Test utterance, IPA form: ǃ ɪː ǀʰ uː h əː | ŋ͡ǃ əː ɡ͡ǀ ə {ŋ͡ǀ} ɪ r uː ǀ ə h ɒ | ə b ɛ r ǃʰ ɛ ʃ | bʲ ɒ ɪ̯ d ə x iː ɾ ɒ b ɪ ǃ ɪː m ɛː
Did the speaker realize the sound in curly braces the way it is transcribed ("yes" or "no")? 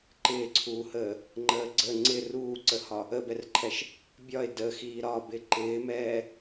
yes